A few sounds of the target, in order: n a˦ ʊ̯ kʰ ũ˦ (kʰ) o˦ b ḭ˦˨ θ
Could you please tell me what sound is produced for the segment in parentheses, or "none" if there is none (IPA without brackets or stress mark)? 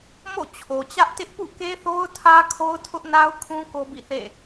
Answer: k